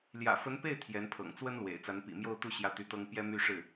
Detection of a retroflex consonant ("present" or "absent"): present